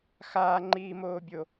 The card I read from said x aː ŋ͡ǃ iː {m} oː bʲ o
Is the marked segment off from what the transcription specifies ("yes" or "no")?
no